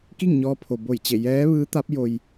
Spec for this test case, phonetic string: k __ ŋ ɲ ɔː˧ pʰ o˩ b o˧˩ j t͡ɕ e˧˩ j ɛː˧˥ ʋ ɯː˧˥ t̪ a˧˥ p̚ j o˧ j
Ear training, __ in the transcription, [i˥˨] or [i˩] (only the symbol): i˥˨